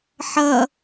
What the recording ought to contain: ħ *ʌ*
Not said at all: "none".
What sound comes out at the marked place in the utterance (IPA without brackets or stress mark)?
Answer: ʌ